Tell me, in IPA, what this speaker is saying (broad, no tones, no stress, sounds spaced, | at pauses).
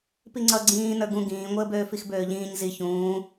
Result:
p i ŋ͡ǀ ʌ ɡ͡ǀ ĩː n ə˞ ɡ ũ ɡ ĩː ŋʷ əː b øː f i x b øː ʎ ĩː ɲ z i ç ũː